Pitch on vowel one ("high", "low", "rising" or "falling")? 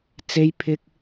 high